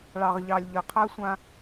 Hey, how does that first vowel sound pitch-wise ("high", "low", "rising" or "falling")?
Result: low